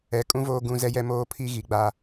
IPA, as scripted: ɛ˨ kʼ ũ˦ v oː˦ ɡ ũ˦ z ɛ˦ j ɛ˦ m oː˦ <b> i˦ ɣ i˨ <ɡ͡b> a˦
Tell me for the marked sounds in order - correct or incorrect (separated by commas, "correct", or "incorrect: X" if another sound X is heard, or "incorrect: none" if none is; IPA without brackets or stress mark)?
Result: incorrect: pʰ, correct